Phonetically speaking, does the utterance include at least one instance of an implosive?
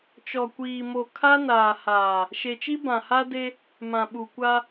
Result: yes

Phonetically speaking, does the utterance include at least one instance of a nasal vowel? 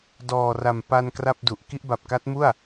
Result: no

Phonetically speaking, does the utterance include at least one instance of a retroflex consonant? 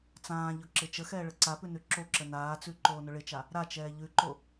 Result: yes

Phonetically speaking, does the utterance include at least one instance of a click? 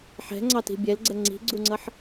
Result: yes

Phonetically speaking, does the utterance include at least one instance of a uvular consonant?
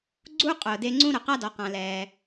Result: yes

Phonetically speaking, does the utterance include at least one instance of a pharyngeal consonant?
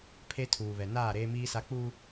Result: no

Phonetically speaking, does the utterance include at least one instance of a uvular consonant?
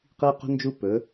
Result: yes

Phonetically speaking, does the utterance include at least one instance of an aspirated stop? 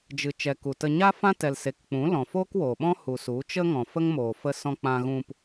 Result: no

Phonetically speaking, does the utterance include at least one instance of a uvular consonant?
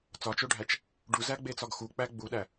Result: no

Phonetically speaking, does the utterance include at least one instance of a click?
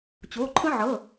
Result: yes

